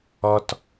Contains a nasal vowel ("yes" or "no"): no